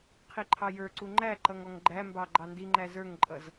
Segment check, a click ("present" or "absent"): present